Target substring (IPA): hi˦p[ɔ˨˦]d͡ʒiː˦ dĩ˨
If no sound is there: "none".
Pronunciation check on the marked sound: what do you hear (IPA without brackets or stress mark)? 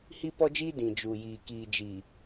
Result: ɔ˦